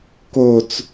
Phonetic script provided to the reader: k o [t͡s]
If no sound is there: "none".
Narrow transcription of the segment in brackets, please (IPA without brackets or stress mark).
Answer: t͡s